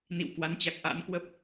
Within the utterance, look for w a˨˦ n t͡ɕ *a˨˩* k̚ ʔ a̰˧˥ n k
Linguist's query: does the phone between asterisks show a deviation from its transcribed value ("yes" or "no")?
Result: no